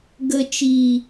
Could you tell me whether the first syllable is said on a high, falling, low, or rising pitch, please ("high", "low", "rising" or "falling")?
low